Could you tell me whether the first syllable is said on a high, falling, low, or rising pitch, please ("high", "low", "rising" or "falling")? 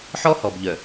high